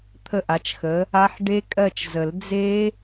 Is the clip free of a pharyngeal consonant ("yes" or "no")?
no